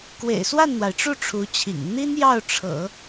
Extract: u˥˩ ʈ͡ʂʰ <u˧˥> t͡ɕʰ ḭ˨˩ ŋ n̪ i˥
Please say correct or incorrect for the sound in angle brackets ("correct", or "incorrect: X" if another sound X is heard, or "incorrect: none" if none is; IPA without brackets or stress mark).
correct